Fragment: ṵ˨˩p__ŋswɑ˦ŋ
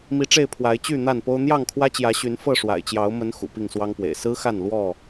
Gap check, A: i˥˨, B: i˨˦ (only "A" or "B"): A